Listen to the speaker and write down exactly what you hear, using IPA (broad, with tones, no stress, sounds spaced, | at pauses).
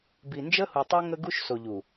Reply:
b i˨ n d͡ʒ ə˦ h u˨ tˤ ɤ˦ ŋ ə˦ ɡ u˦ ʃ s o˨ ʎ u˨